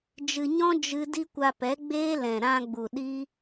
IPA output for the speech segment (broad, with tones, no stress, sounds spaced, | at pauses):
d͡ʒ ɨ˧ ɲ ɔ̃˦ d͡ʒ ɨ˦ d i˦ kʷ a˧ p ɛ˨˦ ɡ͡b eː˦ l ɛ̃˨ ɾ ã˧ ɡ͡b u˨ ɗ i˦